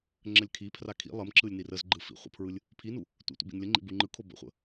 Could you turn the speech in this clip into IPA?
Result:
ŋ͡ǁ ə lʲ kʰ i pʰ r a kʰ ḭ lˠ ə m ǁ ɯ lʲ n i r ə z ɡ͡ǃ ɯ f ḭ χʷ ə̰ pʰ ɹ ɯ lʲ | pʰ i n u | tʷ ḭ tʷ ə̰ b ḭ n lʲ ə ŋ͡ǃ ḭ b u ŋ͡ǃ ɯ kʰ o b ə̰ χʷ ə̰

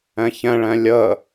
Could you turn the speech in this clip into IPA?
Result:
ɛ̃ ç ɛ̃ ɭ ɛ̃ lʲ ə

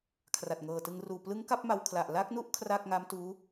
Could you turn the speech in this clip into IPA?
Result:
kʰ r a˨˩ t̚ ŋ ɤː˨˩ t ɯ˧ ŋ r uː˨˩ p l ɯ˦˥ ŋ k a˥˩ p̚ m a˧ w kʰ l a˨˩ ʔ l a˦˥ k̚ n u˥˩ ʔ kʰ r a˥˩ k̚ ŋ a˦˥ m t uː˦˥

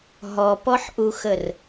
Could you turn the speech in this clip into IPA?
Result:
ɦ ɔ p ɔ ħ ʔ u x ə r

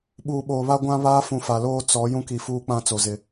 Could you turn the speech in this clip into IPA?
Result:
ɓ uː˨ ɓ oː˨ β a˦ ɡʷ ã˦ β aː˦ f ũ˨ f a˨ l oː˦ t͡s ɔ˨˦ j ũ˦ k i˨ f uː˦ k͡p ã˦˨ t͡s o˨ z ɪ˨

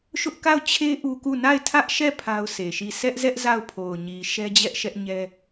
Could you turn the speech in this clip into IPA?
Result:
ʃ ʊ˦ ʔ k a˦˨ ʊ̯ t͡ɕʰ e˦ ʔ u˦ k u˦˨ n a˦˨ ɪ̯ tʰ ä˦ ʔ ʃ ɛ˦˨ pʰ a˦ ʊ̯ sʰ e˨ ʃ i˦˨ sʰ ɛ˦ ʔ z ɛ˦ ʔ z a˦˨ ʊ̯ pʰ o˨ ʊ̯ ɲ i˨ ʃ ɛ˦ d͡ʑ ɛ˦ ʔ ʃ ɛ˦ ʔ ɲ ɛ˦

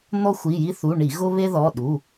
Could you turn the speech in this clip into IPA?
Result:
n̪ ɔ˦ xʷ i˩˧˩ j i˦ θ u˩˧˩ ɳ i˧˩˧ ɣ ʊ˦ β e˦ ð ɔ˩˧˩ ɗ u˩˧˩

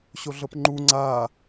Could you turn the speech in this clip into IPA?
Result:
ɕ o ɮ ɤ p ŋ͡ǃ u ŋ͡ǀ a

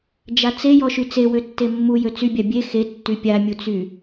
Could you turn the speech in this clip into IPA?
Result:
d͡ʒ a t͡s e j ɔ ʃ y t͡s e w ø tː e mː u j ø t͡s y bʲ a bʲ e x e tː y pʲ a mʲ u t͡s y

